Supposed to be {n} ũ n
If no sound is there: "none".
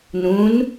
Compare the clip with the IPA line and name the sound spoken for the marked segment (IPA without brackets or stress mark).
n